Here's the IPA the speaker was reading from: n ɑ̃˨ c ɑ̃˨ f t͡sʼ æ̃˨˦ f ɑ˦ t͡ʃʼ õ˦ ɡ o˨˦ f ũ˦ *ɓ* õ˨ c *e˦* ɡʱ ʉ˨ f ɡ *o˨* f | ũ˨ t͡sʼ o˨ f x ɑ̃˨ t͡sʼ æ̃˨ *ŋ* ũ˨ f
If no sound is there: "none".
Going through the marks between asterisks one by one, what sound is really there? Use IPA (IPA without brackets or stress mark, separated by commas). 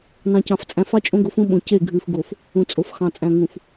ɓ, e˦˨, o˨, ŋ